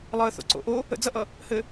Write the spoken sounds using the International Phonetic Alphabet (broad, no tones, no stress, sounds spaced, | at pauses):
lˠ əː θ o̰ ǀ o̰ ʔ o | ə̰ d͡z ʌ ʔ ʌ | h ɘ